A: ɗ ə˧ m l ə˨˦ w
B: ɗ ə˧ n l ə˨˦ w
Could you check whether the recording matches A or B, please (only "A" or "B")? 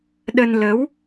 B